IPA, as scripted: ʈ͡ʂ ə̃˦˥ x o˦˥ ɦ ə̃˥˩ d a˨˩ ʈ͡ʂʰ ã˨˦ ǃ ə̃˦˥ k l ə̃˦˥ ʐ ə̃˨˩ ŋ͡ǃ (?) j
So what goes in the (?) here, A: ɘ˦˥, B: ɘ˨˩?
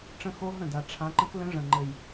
B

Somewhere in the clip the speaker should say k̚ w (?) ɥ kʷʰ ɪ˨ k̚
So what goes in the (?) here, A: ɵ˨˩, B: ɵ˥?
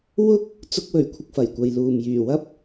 A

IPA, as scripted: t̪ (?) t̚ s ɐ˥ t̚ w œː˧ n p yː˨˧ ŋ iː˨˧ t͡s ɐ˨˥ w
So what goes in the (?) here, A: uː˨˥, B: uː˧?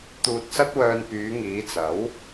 B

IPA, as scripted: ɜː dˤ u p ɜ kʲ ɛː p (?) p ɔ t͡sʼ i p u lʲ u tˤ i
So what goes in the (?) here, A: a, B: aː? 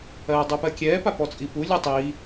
A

